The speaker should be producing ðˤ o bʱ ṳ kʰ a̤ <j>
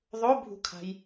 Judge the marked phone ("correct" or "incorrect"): correct